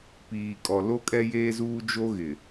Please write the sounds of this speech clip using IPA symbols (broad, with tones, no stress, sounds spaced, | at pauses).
p iː˨ kʼ ɔ˨ l o˦ kʼ ɛ˦ j eː˦ z uː˦ d͡ʒ o˦ ɣ ɪ˨